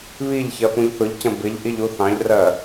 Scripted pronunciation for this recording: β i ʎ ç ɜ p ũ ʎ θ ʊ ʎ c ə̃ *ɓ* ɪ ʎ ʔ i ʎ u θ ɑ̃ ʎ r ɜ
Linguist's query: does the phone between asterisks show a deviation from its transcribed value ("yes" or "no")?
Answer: yes